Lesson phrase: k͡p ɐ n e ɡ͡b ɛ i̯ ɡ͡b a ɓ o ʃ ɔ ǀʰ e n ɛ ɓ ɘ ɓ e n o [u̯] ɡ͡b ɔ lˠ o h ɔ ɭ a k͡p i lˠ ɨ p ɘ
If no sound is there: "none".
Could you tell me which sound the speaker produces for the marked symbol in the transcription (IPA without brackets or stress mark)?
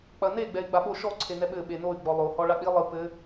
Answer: y̯